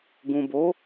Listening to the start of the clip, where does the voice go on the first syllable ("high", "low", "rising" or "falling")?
low